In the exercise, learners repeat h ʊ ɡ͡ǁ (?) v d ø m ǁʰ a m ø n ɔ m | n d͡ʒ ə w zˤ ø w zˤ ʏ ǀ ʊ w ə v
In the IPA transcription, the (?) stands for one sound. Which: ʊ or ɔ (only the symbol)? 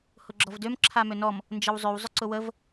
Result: ɔ